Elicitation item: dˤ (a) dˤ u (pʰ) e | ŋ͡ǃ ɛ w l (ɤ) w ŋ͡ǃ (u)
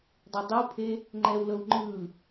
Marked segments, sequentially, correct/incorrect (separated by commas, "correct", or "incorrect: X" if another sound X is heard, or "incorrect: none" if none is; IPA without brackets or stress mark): correct, correct, correct, incorrect: ɯ